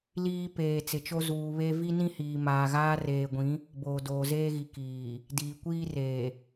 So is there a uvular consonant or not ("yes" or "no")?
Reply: no